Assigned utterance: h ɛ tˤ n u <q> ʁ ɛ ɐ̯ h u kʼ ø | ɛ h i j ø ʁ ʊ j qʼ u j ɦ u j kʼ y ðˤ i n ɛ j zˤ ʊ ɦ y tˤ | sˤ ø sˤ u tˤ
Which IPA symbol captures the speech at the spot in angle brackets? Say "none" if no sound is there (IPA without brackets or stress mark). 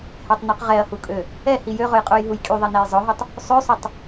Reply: q